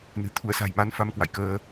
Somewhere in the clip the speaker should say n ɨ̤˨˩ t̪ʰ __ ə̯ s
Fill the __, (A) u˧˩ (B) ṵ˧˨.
A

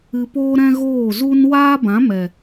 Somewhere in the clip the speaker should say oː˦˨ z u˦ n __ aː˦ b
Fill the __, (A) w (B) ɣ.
A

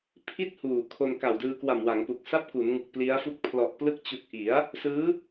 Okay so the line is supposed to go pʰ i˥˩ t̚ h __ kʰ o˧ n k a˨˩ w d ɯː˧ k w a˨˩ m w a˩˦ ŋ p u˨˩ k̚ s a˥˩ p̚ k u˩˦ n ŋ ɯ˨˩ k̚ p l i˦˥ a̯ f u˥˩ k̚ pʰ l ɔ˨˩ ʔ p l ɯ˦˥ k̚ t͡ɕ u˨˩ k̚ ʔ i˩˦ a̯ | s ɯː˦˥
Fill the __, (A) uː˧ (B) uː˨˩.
B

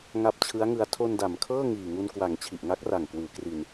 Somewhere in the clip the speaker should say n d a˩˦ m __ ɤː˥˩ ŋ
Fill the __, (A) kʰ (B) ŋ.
A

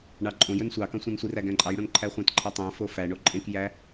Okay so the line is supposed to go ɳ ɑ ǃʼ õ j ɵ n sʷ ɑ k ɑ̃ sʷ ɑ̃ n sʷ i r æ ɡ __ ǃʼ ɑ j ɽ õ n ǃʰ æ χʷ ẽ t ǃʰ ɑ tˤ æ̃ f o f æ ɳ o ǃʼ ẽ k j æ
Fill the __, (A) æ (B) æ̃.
B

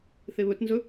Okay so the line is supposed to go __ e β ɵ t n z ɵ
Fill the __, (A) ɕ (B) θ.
B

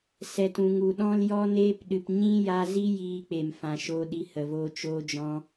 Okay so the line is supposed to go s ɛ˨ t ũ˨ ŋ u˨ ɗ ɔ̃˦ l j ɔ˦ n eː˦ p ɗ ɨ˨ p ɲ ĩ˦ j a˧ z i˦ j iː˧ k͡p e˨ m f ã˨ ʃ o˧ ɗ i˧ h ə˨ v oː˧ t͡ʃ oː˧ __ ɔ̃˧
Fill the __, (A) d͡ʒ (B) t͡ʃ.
A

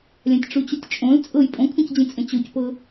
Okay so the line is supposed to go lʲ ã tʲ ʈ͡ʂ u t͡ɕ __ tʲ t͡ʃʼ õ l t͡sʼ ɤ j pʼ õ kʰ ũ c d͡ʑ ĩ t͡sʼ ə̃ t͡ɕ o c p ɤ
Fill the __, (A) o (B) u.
B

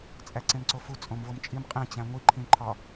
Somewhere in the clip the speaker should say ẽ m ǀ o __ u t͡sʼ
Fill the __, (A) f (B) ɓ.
A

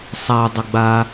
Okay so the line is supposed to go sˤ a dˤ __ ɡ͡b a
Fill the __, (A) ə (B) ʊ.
A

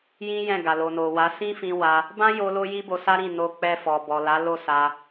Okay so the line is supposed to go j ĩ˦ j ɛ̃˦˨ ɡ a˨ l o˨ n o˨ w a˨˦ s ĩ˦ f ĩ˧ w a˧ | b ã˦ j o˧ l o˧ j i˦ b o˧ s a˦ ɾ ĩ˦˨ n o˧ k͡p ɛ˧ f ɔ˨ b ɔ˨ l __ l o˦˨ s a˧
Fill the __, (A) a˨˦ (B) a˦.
A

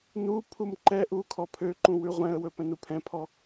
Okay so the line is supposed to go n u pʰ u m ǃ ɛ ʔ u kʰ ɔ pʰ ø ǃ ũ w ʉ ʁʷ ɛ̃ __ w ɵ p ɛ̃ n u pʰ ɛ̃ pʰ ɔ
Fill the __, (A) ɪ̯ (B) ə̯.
B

